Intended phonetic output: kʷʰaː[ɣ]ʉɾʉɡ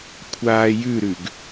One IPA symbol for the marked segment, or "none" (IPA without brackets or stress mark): j